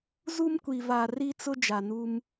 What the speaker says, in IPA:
zu˦mkʷi˨va˨ ri˦t͡sʊ˦ d͡ʒa˨nu˦m

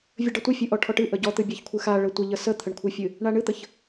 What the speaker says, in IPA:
vʲəɖətʷɨ fʲɨʔɔʈʰɔʈɨ ʔəɟɔt̪ɨ bʲaçkʷʰɨxa ɭətʷəʎə sət̪ʰəɳkʷʰɨfʲɨ | ɳaɳɨt̪əç

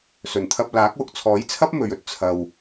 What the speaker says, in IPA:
sɵ˨˩nt̪ʰɐ˧p̚laː˨˥k̚wʊ˨k̚ t͡sʰɔː˨˥jt͡sʰɐ˥p̚mɵ˨ɥɵ˧t̚ t͡sʰɐ˨w

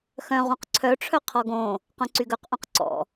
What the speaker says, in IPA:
xœ̃ ʁũqǀʰœ ʈ͡ʂʰœqʰɔɡõ | qœ̃ǀyɡœq ʔõqǀɔ̰

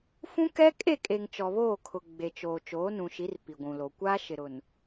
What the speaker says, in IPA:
fũ˦kɛ˦kʼe˦˨kʼe˨ŋ t͡ʃɔ˨βoː˦˨kʰʊ˨ ɡ͡be˨t͡ʃoː˨ t͡ʃoː˨˦nũ˨ʃi˨˦r pi˨ɡʷũ˨lo˨ kʷaː˦ ʃɪ˨ɾʊ˨n

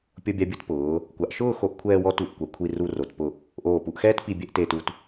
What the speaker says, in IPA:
pʲo˧bʲa˧bʲu˧t pʊː˩˧ | kʷa˩˧ʔ ʃʊː˥˧xo˧ʔ kʷʰɛː˧wɔ˧ tu˧˩ʔkʷa˩˧ kʷʰi˧ ru˧ro˩˧t pʊ˧˩ | ʔoː˧˩pu˧ʔxɛː˥t pi˧bʲɛ˥˧ʔteː˧tu˧t

